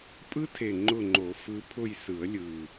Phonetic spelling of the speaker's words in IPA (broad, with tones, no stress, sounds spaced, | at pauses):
pʼ ɯ˦˥ tʰ e˨˩ ŋ͡ǃ ʊ˦˨ ŋ͡ǃ o˨˩˦ f ɯ˨˦ pʰ ʊ˦˨ j s ɯ˨˩˦ ə̯ lʲ ɯ˨˩